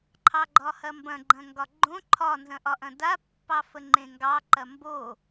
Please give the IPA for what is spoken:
ǃʰɑɡ͡ǃɒhɐmbɐ̃ ɡ͡ǃɐ̃ŋɡɒɡ͡ǃõ ǃʰɒ nzɐ̃ʔɒʔɐ̃da pːɑfəŋ͡ǃẽŋɡɑ ǃɐmbo

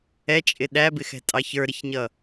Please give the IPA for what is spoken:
ɛt͡ʃʼɪ ɗæbɪxɛ̤tʼɑ çə˞ɾɪçɲʌ

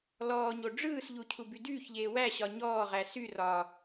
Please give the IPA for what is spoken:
lɔːɲo ɖ͡ʐɯːsʎu cʰubydyːçʎeː wæɕɒ ɲɔːʁæ sy rɒ

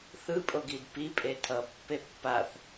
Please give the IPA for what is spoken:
θɯ pʼoɡidpi pʼetʰʌ pːepːaθ

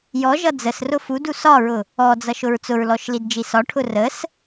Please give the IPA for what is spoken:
jɔʒʌ d͡zəsrʊ fudu sɒɹʊ | ɔd͡zʌʃʊɹ t͡sʊɹlɔʃlidd͡ʒi sɒʈʰʊ rəs

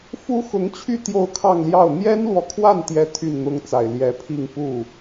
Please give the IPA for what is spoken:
fu˥xʊ˧˥ŋt͡ɕʰy˥˧ t̪jo˥˧ʊ̯kʰɑ˥˧ŋljɑ˥˩ʊ̯ n̪jɛ˥nlwɔ˨kʰwa˥˩n t̪jɛ˥ t̪ʰy˥˩nn̪ʊ˥ŋt͡sa˨˩ɪ̯ ljɛ˧˥pʰi˥˧ŋ pu˥˩

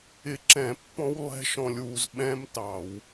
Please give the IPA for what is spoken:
ɪ˧ ǁɛ̃˧˩˧ pːɔ̃˦˥w lˠɛ̤˦˥ʃɔ̃˧lʲwu˧z ɓɛ̃˦˥mtɑ˧˩˧w

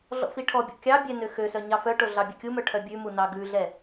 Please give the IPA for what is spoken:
ɮɔ̰fiʈʰɔbʲɔ̰ kʲɑbʲɛ nøxøsœ ɲɑfœʈo ɮɑbʲœkʲumœ ʈʰœbʲʉmu nɑɡʉɮɛ

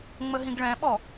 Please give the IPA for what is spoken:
ŋ͡məɦĩɡɭɛ̃ɓɔ

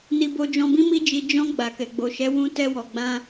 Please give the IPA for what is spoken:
ni˧bo˧d͡ʒɔ̃˧bĩ˦ mi˦d͡ʒi˧ d͡ʒɔ̃˧ ɡ͡ba˨kɛ˨ɡ͡bo˨ ʃɛ˨˦wũ˧ tɛ˧wɔ˨ɡ͡bã˧

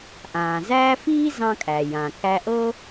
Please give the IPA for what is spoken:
ʔãː˩zæː˥ fiː˥zɑ̃˧kʼæ˩ jã˩kæ˧ʔɤ˥

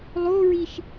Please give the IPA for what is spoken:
lˠoɹiʃ

